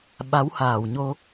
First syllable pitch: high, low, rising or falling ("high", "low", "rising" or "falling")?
rising